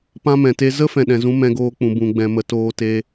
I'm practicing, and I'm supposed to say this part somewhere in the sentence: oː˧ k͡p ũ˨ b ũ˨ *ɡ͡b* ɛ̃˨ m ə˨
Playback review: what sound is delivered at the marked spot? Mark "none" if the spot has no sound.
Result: ɡ͡b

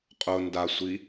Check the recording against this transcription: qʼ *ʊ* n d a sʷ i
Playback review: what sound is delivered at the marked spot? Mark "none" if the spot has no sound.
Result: ʊ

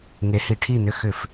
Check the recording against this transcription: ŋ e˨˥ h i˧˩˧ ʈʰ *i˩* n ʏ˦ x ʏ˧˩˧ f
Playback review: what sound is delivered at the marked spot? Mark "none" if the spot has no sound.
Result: i˥˩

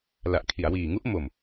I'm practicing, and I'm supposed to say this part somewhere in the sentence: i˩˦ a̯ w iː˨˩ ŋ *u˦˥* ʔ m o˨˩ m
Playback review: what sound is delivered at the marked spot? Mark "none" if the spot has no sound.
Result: u˦˥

